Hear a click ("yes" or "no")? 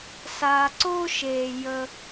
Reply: yes